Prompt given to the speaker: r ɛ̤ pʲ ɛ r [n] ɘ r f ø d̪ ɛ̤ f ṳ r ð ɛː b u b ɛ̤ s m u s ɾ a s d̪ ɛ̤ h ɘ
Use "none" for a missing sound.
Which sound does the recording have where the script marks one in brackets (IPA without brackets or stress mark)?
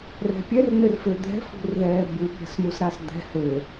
n